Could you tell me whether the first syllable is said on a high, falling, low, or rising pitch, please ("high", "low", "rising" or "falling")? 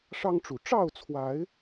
high